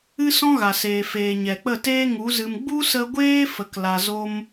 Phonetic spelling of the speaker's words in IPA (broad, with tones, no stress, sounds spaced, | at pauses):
ɨ˦ s ɔ̃˦ ɣ a˨ s eː˨ f eː˨ ɲ ɛ˨ k͡p ə˦˨ t eː˦ ŋ u˨˦ z ɨ˧ m ɡ͡b u˦ s ə˧ ɡʷ eː˦ f ə˨ k l a˧ z o˦ m